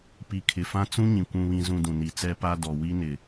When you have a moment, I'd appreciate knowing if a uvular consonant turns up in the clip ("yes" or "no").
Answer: no